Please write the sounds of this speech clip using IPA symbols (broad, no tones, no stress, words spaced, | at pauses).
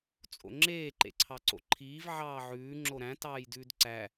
t͡sʼo̰ŋ͡ǁeː ǃḛǀʰɑǀo̰ǃʰiːv ʕɑːʕʉː ŋ͡ǁoɾæ̃ tɑːjdʉːdǀæ